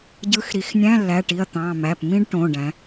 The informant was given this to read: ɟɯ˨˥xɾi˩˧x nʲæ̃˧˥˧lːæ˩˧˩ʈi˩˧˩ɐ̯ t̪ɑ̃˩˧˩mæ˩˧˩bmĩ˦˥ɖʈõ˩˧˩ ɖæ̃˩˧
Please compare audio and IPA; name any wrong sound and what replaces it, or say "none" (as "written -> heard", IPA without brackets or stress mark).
b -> p